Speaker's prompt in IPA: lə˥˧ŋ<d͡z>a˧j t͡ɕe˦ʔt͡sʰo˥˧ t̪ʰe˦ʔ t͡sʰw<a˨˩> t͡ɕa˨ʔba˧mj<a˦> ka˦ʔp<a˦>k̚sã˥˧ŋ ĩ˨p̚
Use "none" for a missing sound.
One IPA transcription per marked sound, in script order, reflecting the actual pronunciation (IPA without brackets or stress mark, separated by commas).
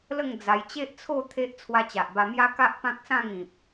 d͡z, a˧, a˦, ã˦